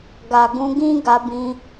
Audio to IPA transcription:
ɡa˨ɡũ˨˦ɡĩ˦ ɡa˧bĩ˧

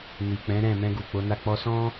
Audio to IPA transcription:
ni˨k͡pɛ̃˨˦ɾɛ̃˦˨ mɛ̃˧ ɡu˨k͡po˨˦na˦˨ k͡pɔ˧sɔ̃˦

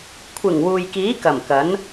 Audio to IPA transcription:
kʷʰɪ˨˩ŋ wuː˨jkiː˨˥kɐ˨˩m kɐ˨˥n

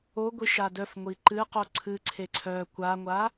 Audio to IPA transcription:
oɡʷi ʃadœf ŋʷiǃɨ qoǀʰɨ ǀʰeǀʰœ kʷaŋʷa

